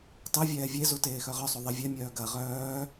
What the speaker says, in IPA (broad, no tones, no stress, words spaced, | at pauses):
tˤevʲɛː vʲezu teːxœʁœsˤu ðˤevʲɛmʲœː ɡɐ ʁœː